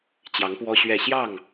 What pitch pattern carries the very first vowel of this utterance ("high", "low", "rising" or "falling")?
rising